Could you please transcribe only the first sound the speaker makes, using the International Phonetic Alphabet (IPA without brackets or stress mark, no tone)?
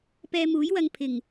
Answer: p